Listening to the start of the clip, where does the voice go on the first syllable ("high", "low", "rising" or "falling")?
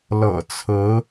low